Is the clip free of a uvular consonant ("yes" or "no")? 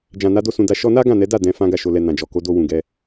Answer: yes